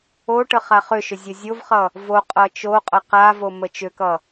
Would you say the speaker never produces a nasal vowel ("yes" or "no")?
yes